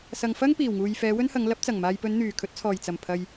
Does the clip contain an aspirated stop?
yes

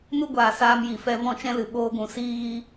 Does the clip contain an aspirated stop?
no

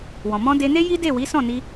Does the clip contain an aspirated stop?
no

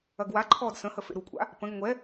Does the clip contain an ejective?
yes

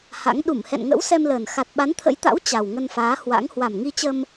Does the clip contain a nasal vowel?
no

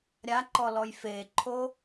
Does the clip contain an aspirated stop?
yes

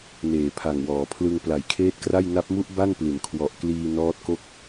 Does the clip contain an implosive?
no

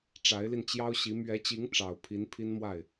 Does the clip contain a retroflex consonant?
yes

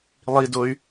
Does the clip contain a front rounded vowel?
yes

